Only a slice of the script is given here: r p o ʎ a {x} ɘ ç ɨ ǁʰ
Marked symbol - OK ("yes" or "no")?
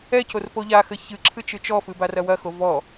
yes